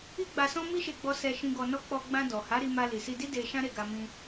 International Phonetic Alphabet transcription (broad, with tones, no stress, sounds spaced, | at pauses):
i˦ ɡ͡b a˧ s ɔ̃˦ m i˦ ʃ e˧ ɡ͡b ɔ˧ s ɛ˨ ʃ ĩ˨ ɡ ɔ˨ n ɔ˧ k͡p ɔ˧ ɡ͡b ã˧ d ɔ˨ h a˨˦ ɾ i˧ m a˧ l i˨ s i˧ d i˦ d e˧ ʃ ã˦ ɾ e˦˨ ɡ a˧ m ĩ˧